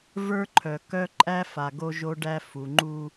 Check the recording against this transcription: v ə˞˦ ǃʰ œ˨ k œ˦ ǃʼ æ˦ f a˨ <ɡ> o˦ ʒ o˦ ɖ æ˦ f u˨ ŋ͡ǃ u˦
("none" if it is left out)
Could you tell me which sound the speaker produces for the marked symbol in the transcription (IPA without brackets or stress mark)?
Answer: ɡ